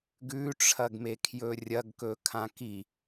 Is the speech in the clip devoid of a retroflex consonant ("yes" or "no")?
no